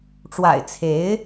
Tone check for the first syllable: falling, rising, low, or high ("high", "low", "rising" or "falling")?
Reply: low